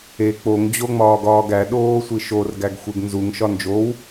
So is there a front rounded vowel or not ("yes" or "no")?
no